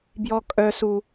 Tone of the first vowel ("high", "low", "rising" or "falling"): high